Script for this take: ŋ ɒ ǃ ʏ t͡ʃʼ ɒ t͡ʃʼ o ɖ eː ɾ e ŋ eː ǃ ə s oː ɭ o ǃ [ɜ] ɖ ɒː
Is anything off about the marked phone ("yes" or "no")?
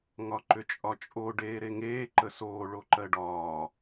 no